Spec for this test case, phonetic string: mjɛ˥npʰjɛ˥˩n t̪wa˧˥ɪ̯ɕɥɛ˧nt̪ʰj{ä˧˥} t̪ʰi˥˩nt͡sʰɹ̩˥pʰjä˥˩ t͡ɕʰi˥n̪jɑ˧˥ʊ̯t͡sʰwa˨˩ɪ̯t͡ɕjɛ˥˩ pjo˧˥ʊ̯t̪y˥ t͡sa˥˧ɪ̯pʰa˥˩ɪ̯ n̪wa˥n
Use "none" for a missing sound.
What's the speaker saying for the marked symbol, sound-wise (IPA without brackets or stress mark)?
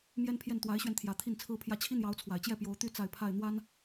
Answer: ä˨˩